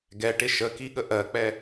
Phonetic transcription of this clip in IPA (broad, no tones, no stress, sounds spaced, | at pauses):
ɡ ɛ ʈ ɪ ʃ ə k i ɠ ə ʔ ɜ k͡p ɛ